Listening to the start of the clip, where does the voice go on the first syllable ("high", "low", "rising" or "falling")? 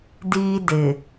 high